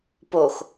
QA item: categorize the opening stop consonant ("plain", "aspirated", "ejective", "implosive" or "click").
plain